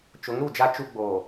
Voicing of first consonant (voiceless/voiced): voiceless